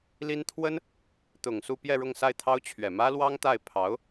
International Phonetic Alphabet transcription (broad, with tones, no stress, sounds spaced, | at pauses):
l i˥ n t̪ʰ w ə˥ n | t̪ ʊ˨˩ ŋ s u˥˧ p j ɛ˥˧ ɻ ʊ˥˧ ŋ s a˥˩ ɪ̯ t̪ʰ ɑ˥ ʊ̯ t͡ɕʰ ɥ ɛ˨˩ m ä˥ l w ɑ˥ ŋ t̪ a˥˩ ɪ̯ pʰ ɑ˧˥ ʊ̯